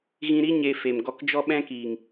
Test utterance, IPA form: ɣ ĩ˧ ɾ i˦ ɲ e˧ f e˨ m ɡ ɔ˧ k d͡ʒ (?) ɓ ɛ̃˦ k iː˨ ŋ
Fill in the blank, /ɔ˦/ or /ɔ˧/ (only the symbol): ɔ˦